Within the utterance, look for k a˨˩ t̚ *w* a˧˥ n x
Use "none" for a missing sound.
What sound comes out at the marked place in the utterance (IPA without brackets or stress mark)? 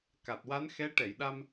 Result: w